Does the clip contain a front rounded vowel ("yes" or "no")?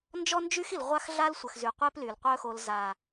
yes